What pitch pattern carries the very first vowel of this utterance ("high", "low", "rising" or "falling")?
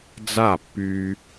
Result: falling